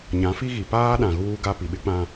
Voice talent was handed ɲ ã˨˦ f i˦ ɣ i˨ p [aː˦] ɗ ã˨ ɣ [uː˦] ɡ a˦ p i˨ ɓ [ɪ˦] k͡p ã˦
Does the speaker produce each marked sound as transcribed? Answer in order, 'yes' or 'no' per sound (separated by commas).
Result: yes, yes, yes